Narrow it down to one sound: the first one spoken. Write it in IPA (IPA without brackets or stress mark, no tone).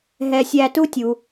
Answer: ɦ